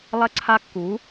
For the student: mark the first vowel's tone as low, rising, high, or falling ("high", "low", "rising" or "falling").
high